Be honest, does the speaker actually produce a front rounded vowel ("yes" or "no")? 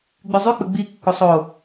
yes